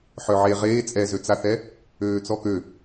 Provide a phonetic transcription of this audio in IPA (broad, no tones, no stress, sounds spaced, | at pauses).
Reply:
ħ œ ʕ e ʁ eː t͡sʼ ɛ z ø t͡s a θ ɛ | øː t͡s ɔ k ø